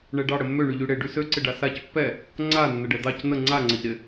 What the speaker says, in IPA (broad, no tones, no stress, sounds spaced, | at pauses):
ɳ ɛ ɖ ɑ ɽ ə mː ø ɳ y ʎ y ɽ e ɖ y s ø ǀ ɪ ɖ a s a c pː ɛ | ŋ͡ǀ a nː ə ɖ ɛ d̪ ɑ c n̪ ə ŋ͡ǀ a ŋ͡ǀ ə ʎ ɾ ɪ